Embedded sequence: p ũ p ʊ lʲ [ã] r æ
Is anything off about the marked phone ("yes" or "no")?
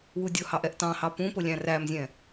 yes